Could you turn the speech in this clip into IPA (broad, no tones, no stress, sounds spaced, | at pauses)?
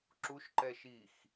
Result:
ǁ u ʃ ǃ ɛ ʃ i x